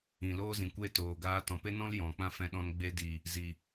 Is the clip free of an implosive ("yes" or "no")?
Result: no